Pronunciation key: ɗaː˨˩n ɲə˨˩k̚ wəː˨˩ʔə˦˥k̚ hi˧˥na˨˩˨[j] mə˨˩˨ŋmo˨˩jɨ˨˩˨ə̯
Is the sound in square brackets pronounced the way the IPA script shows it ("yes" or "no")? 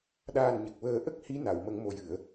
no